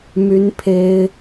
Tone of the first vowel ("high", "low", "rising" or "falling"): high